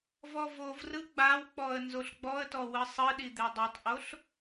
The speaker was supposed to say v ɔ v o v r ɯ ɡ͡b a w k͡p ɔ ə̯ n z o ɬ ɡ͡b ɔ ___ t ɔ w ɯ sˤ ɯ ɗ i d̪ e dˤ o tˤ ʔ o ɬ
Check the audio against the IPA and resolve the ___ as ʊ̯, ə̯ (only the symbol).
ə̯